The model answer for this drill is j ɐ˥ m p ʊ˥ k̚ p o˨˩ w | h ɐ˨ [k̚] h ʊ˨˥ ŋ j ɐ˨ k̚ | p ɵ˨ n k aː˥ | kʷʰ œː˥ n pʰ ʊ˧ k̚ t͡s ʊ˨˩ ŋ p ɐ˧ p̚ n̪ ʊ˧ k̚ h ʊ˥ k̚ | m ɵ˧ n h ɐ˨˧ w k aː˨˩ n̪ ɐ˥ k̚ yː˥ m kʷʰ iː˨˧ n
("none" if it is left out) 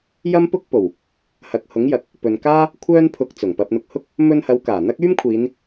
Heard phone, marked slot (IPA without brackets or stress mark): k̚